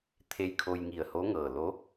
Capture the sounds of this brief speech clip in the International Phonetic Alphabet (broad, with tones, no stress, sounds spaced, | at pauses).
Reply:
t̪ʰ e˧ j kʰ o˧ j ŋ i˧˩ ə̯ h o˧˥ ŋ ɤː˧˩ l o˧˥